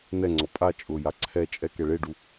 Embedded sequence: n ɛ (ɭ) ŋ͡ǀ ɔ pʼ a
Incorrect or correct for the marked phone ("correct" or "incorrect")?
incorrect